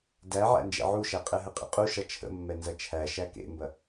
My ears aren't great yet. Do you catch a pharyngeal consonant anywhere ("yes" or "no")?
yes